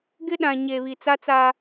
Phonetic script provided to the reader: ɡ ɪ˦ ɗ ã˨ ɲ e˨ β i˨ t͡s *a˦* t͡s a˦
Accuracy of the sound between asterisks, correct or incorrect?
correct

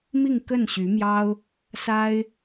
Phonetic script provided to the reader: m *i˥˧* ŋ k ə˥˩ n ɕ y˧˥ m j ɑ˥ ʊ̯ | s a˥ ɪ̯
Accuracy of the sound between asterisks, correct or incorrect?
correct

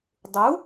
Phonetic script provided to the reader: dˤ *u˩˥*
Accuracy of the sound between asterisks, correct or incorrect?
correct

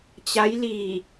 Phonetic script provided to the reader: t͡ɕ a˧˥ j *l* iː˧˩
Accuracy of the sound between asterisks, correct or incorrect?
correct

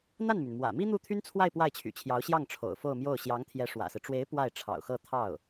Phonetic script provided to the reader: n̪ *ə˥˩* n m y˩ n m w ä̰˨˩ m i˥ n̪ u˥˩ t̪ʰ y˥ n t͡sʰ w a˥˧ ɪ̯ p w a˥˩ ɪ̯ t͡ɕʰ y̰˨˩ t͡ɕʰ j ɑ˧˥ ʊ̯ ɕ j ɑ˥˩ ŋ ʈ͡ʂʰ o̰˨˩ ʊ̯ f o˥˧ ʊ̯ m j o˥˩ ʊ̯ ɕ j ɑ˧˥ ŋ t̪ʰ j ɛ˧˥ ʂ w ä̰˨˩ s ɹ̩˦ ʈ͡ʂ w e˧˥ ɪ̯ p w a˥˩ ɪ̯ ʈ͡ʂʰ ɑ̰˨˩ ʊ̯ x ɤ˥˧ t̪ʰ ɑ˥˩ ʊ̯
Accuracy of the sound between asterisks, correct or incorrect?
incorrect: a˥˩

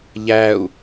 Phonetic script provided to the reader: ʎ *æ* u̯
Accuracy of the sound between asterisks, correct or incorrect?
correct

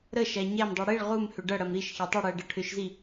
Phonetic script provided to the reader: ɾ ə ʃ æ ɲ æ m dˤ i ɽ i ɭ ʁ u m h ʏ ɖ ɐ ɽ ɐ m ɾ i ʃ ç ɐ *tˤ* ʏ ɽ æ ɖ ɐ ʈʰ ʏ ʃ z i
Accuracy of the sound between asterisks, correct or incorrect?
correct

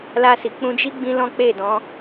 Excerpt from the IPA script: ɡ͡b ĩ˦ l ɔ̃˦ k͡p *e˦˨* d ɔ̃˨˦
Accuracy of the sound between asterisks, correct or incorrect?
correct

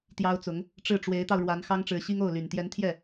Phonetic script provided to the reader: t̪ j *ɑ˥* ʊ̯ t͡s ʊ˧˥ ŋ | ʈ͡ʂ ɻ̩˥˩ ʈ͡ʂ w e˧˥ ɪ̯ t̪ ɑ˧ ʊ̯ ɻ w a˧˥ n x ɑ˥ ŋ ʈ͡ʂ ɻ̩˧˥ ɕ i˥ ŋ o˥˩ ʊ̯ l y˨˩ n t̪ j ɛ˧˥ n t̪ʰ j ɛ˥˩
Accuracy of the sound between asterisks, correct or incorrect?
correct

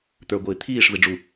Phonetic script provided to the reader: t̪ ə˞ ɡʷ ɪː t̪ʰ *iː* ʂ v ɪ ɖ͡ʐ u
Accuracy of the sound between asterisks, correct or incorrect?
correct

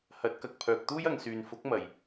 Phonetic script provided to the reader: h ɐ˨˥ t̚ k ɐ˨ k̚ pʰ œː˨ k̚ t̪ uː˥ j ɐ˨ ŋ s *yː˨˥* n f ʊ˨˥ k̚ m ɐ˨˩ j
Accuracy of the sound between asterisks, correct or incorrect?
incorrect: yː˨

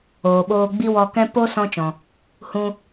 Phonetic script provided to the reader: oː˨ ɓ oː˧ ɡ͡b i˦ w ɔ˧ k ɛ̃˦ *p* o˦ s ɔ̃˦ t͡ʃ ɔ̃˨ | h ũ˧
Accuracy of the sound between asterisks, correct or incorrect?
correct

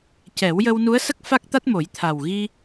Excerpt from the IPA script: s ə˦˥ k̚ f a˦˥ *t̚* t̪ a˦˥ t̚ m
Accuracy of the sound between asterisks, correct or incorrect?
incorrect: k̚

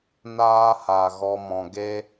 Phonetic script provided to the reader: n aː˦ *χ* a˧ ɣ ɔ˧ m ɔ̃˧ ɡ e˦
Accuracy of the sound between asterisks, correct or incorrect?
incorrect: h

